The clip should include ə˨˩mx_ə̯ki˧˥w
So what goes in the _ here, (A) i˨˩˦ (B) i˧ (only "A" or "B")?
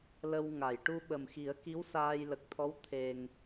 A